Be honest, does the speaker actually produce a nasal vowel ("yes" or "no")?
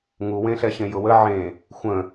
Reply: yes